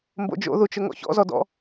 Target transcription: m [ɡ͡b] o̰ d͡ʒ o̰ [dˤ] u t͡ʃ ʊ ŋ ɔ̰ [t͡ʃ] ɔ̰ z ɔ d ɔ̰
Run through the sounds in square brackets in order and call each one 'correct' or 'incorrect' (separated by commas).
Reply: incorrect, incorrect, incorrect